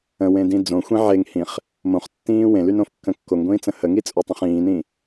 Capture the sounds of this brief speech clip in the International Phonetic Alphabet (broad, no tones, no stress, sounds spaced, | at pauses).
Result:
ə̃ w ẽ d ĩ d͡z õ xʷ ĩ ʕ e ŋ h ĩ χ | m õ χ tː ĩː w ẽ l y n õ f kː ə̃ kː o ŋ ɡʷ ĩː t͡s ə̃ h ə ŋ i t͡sʼ o tˤ ə̃ χ ĩː n ĩ